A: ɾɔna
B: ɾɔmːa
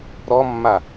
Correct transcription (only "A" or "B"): B